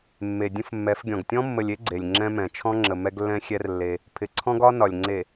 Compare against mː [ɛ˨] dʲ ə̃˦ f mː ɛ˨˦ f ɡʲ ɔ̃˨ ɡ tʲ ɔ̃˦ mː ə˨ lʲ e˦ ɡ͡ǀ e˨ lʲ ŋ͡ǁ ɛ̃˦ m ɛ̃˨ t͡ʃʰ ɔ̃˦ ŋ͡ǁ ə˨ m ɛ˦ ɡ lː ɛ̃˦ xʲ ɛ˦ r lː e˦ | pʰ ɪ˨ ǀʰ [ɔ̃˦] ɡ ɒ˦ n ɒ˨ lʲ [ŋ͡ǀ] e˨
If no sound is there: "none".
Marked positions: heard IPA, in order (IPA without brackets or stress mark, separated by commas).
e˨, ɔ̃˦, ŋ͡ǀ